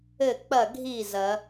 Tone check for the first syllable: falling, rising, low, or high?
falling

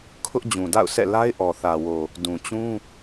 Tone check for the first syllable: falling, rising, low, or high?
high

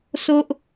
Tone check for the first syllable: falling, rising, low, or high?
high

